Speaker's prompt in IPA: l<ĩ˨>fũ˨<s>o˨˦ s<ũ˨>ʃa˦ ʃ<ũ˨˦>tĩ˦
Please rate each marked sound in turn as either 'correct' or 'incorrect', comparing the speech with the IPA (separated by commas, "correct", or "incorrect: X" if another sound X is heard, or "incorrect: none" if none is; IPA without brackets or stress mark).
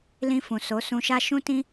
incorrect: ĩ˧, correct, incorrect: ũ˧, incorrect: ũ˦